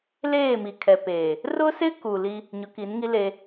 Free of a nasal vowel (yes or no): yes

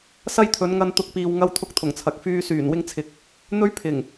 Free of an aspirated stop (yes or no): no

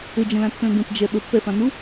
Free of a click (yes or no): yes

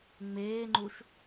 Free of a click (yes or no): no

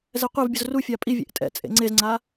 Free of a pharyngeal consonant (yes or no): yes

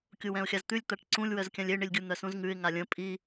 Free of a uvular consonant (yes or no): yes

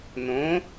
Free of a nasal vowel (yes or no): no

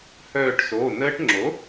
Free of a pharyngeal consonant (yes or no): yes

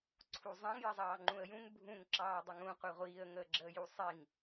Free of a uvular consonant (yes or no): no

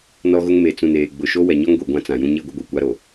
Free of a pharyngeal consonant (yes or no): yes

